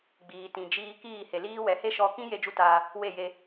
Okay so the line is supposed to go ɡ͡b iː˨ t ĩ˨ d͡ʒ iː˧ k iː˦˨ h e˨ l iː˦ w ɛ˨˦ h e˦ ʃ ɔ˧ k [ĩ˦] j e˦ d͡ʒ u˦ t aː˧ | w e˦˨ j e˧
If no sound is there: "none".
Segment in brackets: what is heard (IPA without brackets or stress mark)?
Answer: ĩ˦